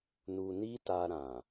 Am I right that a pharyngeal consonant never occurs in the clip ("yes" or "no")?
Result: yes